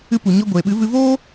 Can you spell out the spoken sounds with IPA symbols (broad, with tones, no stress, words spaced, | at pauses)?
ɨ˧ pu˨ɲɔ˧ɡʷeː˨ɓɨ˨˦ vɨ˧voː˦